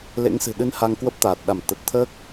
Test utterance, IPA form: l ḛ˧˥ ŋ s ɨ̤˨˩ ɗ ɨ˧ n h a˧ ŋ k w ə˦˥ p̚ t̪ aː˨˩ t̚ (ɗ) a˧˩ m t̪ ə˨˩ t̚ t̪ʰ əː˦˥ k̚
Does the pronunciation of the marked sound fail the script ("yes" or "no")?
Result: no